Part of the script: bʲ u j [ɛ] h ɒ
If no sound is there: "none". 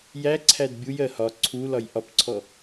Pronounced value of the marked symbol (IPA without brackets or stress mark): ɜ